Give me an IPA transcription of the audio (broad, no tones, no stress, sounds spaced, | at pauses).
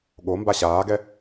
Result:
ɠ o m b a ɕ aː ɡ ɛ